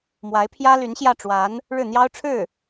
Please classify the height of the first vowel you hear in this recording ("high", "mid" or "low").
low